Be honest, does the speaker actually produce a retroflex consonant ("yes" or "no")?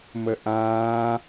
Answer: no